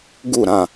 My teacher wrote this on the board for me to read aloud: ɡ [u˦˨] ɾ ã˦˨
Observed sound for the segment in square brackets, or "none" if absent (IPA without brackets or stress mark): u˦˨